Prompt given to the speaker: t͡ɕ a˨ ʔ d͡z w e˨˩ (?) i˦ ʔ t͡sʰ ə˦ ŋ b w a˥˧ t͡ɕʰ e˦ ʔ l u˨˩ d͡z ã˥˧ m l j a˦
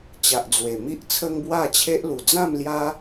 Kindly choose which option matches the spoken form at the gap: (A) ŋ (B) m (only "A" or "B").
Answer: B